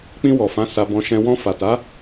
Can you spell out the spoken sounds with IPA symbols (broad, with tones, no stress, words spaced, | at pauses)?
k͡pĩ˧wɔ˨fã˨˦ sa˧bɔ̃˧ ʃɛ̃˧ wɔ̃˧fa˨ta˨˦